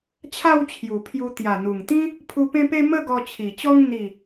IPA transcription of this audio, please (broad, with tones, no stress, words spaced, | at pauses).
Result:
t͡ɕʰa˥˧wt͡ɕʰju˨˩pʰju˧ t̪ja˨˩n̪u˨˩ŋt̪ĩ˦ | pʰu˧pẽ˦pe˦ mə˥˧ɡɔ˧t͡ɕʰi˨˩t͡ɕɔ˦ŋ n̪i˥˧